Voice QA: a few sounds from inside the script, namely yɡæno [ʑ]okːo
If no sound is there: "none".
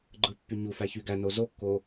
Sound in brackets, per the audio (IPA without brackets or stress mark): z